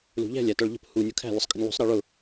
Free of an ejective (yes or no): no